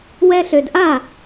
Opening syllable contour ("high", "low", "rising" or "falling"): high